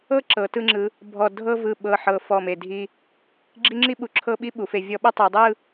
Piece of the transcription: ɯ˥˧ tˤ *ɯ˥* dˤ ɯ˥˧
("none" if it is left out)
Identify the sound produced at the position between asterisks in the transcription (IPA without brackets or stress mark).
ɯ˩˧